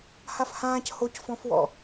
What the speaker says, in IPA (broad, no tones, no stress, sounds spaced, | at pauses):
h a f h ãː c h o c f ɔ̃ f w ɔ̰